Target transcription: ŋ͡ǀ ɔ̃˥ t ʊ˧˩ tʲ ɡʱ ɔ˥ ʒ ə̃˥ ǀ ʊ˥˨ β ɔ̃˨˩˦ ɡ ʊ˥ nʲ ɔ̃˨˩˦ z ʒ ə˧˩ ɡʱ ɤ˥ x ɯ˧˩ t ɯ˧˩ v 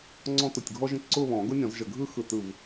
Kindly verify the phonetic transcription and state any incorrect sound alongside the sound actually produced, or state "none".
ɤ˥ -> ɯ˥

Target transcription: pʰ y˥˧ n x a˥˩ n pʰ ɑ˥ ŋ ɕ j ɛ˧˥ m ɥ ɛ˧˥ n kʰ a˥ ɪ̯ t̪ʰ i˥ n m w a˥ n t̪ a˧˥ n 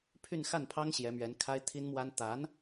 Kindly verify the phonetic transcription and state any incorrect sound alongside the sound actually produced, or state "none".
none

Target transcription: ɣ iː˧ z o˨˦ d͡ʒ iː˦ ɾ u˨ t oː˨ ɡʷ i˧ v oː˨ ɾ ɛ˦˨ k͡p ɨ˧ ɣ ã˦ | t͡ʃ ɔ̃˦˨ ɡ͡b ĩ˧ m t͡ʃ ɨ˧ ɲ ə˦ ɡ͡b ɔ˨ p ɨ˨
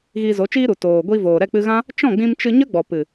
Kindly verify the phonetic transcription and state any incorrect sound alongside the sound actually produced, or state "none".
d͡ʒ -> t͡ʃ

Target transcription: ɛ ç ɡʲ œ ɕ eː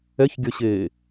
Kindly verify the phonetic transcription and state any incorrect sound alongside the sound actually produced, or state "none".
none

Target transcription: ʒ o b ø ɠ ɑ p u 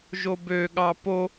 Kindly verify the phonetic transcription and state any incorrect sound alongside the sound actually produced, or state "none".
u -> o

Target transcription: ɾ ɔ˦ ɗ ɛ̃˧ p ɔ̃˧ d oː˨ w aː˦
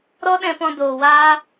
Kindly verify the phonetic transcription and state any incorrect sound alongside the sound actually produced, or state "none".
none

